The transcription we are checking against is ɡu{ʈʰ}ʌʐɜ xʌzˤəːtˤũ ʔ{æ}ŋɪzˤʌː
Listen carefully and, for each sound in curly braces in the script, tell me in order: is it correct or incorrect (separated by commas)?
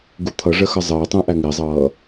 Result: incorrect, correct